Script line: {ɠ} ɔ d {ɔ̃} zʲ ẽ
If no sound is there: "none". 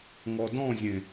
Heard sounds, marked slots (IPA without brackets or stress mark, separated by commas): ŋ, ɔ̃